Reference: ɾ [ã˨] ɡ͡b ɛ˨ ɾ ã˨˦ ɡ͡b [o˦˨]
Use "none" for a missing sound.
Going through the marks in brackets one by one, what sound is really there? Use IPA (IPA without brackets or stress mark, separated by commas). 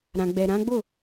ã˨, o˦˨